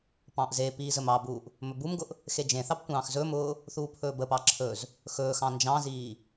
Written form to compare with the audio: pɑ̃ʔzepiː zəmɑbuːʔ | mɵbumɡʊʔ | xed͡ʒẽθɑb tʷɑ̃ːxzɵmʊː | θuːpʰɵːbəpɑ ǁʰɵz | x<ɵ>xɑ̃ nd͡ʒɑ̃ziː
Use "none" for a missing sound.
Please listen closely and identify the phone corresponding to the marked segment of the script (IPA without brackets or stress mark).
ɵː